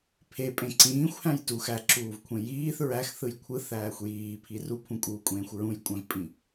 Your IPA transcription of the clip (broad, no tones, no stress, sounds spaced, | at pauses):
pʰ e pʼ ẽ ǀ ĩː xʷ h æ̃ j t u x æ ǁ uː v kʷʰ ẽ j iː θ ɹ æ x θ ɯ j kʷʰ ɯ θ æː xʷ j iː pʰ i r u pʰ ũ kʼ uː kʷʼ ẽː xʷ ɹ ũ j kʷʼ æ̃ v pʼ ĩ